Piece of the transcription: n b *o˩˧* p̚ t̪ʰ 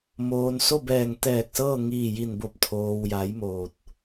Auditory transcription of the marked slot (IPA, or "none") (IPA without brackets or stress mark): o˧˩